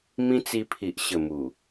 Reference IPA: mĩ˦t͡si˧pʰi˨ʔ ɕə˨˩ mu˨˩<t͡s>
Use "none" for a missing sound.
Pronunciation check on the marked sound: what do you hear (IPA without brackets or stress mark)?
none